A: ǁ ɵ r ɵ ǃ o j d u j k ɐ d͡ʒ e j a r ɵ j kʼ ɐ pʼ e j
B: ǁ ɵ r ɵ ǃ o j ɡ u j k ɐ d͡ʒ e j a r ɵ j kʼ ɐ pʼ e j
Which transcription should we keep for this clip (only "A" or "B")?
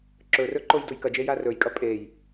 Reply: A